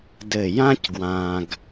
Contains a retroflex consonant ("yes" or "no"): no